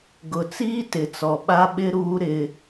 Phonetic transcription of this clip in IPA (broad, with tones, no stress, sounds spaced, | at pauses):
ɡ ʊ˨ t͡s iː˦ t ɪ˨ t͡s ɔ˨ ɓ a˦ ɓ ɪ˦ ɾ uː˦ ɾ ɪ˦